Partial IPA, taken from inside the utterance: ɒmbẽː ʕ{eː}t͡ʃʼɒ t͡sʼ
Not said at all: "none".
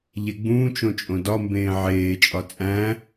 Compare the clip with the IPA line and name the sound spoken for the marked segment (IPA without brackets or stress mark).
eː